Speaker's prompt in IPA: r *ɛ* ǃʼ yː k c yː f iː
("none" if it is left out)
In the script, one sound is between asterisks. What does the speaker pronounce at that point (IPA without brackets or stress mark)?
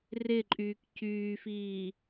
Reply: ɪ